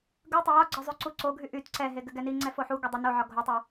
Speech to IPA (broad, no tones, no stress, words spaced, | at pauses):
ɡɯtˤɘ jɒɡ͡ǀɒ zˤyǀuǀoɡʱy ʔyt ǀɛɦe ɡɘɡɛniŋ͡ǀɛ foħuɡo dˤɯnoʕɒ ɡʱotˤy